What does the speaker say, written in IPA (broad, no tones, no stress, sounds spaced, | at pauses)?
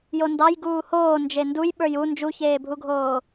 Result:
j o n d ɑ j ɡ uː h oː n d͡ʒ e n d u j ɓ ə˞ j u n d͡ʒ u ç eː bʱ u ɡʱ oː